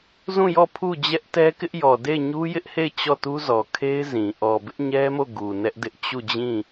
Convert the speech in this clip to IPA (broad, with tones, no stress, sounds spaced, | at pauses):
z ũ˦˨ j ɔ˦˨ pʰ u˦˨ d͡ʑ ɛ˦ ʔ t ɛ˦ k ɪ˦ ʔ j ɔ˨ d e˦˨ ɪ̯ ɲ u˦ j ɪ˦ ʔ h e˦˨ ɪ̯ t͡ɕ ɔ˦˨ t u˦ z ɔ˨ kʰ e˦ ɪ̯ z ĩ˨ ʔ ɔ˨ b ɪ˦ ʔ ɲ ɛ˦ m o˦˨ ɡ u˨ n ɛ˦ ʔ d ɪ˦ ʔ t͡ɕ u˦˨ d͡ʑ ĩ˦˨